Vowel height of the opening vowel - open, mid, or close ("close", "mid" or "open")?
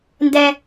mid